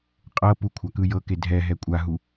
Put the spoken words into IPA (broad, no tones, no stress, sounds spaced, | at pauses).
qʼ ɤ p u kʷʰ a k ɯ j ɤ k e dʱ ɛ ɦ ɛ kʷʼ a ɦ u